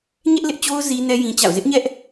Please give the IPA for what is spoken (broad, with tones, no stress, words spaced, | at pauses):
ɲɛ˦ʔlɪ˦ʔt͡ɕo˦ʊ̯ zi˦ nɛ˦ jĩ˦t͡ɕa̰˦˨ʊ̯ zɪ˦ʔɲɛ˦ʔ